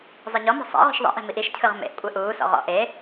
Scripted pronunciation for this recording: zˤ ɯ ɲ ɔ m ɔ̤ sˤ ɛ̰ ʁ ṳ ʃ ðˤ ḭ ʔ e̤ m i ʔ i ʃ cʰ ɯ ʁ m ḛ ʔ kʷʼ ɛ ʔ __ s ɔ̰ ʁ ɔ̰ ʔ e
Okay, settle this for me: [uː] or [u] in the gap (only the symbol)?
uː